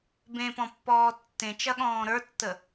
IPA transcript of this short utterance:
b ẽ p ɔ̃ pː ɔː tː ẽ t͡ʃ ɐ ɠ ɔ̃ː ɾ ə˞ tː ə

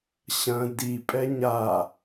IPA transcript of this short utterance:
ɕ ɐ̃ d i pʼ ɛ ɲ a

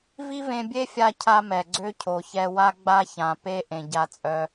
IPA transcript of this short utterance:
v i˦ v ẽ˧ bʲ e˦ fʲ a˧ cʰ a˦ m ɛ˨ ɡ͡ǀ ø˦ cʰ o˨ ç ɛ˧ w a˦ ɡ͡b a˦ ç ã˨ p e˦ ʔ ẽ˨ ɟ a˧ t͡sʼ œ˧

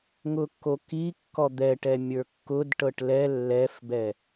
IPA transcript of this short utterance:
ŋ ʊ kː o k i kː ɔ d̪ ɛ ʈ ɛ mʲ ə˞ kː ʊ d ʈ ɤ ʈ l ɛ lː ɛ f b ɛ

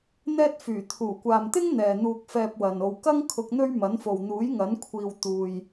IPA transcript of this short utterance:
n̪ ɛː˥ t̚ f yː˨˩ t̪ʰ uː˨˩ kʷ aː˨ m t̪ ɪ˥ ŋ n̪ ɛː˨ n̪ uː˧ k̚ f ɛː˧ p̚ w ɐ˨ n o˨ w k ɐ˥ ŋ kʰ ʊ˧ k̚ n̪ ɵ˥ ɥ m ɐ˨˥ n f o˨ w n̪ uː˨˥ j ŋ ɐ˨˥ n kʷʰ iː˧ w t̪ uː˧ j

